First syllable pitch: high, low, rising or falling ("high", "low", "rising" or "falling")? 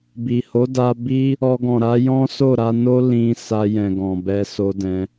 low